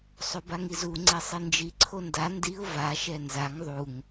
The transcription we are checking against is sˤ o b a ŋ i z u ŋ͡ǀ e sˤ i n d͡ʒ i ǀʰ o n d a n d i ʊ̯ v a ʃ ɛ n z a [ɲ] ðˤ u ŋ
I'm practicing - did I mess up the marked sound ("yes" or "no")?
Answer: yes